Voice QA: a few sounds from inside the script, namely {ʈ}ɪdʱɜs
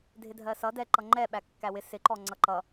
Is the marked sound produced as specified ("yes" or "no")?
no